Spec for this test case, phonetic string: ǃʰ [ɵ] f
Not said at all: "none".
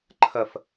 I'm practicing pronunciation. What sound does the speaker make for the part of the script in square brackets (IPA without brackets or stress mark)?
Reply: ə